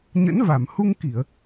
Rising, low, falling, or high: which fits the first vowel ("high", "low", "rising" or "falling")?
rising